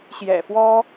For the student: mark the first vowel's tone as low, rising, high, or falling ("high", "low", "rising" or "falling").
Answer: low